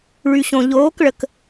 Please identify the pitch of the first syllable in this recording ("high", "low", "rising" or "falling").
low